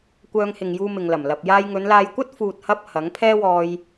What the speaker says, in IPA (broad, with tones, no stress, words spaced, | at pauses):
kʷœː˧ŋhɪ˨ŋjuː˧ mɪ˨ŋlɐ˨˩mlɐ˨p̚ jaː˧j ŋɵ˨˧nlaː˧jkʷɐ˥t̚ fuː˨t̚hɐ˧p̚ hɐ˨˥ŋ pʰɛː˥wɔː˧j